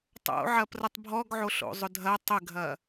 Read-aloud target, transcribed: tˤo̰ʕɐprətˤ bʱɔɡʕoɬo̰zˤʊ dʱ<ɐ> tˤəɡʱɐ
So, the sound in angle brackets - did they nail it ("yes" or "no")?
yes